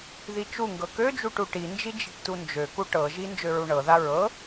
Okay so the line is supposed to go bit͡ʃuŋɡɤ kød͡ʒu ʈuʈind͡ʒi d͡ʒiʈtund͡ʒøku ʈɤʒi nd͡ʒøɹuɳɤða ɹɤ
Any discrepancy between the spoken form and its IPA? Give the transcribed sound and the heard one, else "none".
b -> ð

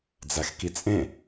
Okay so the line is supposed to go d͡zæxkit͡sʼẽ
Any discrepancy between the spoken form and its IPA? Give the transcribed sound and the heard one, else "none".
none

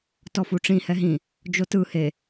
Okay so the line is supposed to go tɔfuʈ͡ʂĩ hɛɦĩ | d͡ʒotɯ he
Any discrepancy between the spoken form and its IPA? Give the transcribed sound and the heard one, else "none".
none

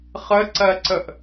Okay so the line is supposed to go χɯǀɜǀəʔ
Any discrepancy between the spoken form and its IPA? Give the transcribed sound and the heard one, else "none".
ɯ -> ə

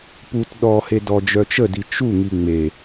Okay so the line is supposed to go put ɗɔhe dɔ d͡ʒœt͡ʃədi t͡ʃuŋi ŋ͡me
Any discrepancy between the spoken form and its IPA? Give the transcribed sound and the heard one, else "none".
none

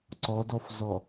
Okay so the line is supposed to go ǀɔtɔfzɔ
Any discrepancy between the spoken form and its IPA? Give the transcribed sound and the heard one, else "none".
t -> d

